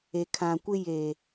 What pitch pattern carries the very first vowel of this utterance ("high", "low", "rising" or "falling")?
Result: low